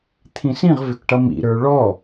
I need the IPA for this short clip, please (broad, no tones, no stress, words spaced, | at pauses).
t̪ʰĩsĩʁvʏkʈʌ mḭɾə˞ ɭɔ